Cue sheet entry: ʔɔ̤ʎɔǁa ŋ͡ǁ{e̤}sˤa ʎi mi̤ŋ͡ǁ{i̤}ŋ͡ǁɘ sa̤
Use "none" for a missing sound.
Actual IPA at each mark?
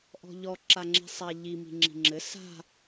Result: i̤, i̤

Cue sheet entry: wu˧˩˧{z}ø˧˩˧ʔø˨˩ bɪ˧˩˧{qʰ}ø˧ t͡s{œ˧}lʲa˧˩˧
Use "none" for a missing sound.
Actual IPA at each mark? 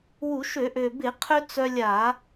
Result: ʃ, qʰ, œ˧

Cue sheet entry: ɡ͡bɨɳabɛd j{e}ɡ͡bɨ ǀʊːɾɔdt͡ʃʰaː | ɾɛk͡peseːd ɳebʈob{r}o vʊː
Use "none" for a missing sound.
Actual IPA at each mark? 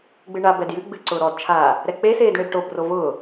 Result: ɨ, r

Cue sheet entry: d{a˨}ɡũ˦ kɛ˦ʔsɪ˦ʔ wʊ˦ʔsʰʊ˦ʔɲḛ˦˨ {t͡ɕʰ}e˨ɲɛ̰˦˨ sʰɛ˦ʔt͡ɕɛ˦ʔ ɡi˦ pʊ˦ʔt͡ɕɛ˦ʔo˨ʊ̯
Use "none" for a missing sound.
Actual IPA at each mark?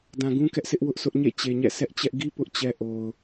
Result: ã˨, t͡ɕ

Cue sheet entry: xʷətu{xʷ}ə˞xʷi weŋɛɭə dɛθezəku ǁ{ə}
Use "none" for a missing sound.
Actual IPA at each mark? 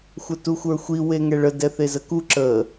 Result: xʷ, ə

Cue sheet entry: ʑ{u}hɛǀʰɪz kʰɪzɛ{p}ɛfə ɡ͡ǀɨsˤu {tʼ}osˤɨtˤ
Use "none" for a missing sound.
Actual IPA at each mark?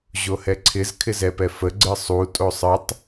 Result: o, p, tʼ

